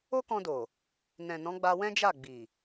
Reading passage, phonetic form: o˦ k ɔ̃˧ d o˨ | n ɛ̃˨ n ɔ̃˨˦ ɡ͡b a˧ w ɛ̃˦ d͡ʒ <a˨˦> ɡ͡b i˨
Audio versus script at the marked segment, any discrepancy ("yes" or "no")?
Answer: yes